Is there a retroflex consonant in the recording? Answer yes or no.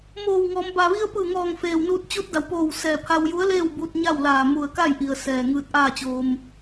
no